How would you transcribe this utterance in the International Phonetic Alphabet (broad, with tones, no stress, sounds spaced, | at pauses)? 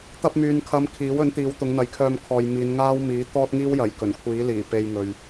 t̪ ɐ˧ p̚ m yː˨ n kʰ ɐ˨ m kʰ iː˨˥ w ɵ˨˥ n t̪ iː˨˧ w t̪ ʊ˨˧ ŋ n̪ ɐ˨˧ j kʰ œː˧ m kʰ ɔː˨ j m iː˨˧ n ŋ aː˥ w m iː˨˥ t̪ ɔː˥ t̚ ŋ iː˥ w j ɐ˨˩ j k ɵ˨˩ n kʷʰ iː˨˥ l iː˨˩ p e˧ j ŋ ɵ˨ ɥ